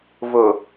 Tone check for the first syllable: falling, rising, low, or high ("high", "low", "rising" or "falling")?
low